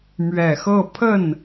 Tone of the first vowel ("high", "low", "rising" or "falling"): low